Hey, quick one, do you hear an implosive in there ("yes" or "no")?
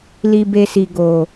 no